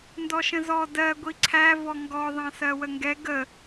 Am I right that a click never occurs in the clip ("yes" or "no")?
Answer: no